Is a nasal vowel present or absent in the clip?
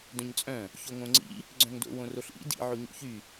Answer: present